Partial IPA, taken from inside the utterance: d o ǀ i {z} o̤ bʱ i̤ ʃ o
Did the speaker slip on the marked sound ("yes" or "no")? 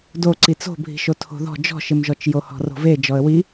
yes